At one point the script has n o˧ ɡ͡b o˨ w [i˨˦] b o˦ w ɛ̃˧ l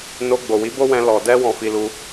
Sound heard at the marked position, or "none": i˨˦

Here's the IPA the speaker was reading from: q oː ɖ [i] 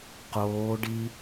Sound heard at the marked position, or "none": i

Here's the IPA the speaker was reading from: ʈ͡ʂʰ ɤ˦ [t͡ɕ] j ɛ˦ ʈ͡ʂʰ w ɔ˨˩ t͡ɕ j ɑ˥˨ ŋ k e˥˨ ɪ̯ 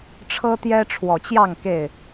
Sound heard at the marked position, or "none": t̪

